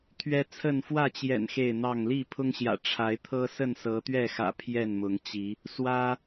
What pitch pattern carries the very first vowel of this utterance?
high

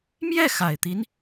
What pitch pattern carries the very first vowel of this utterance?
falling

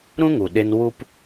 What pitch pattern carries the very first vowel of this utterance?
high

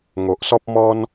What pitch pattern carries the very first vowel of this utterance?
low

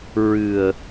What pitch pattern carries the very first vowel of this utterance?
low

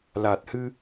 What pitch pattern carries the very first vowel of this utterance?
low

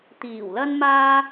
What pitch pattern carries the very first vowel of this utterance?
low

